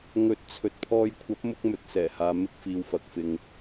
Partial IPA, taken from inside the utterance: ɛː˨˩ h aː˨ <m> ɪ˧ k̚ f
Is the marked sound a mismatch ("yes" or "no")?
no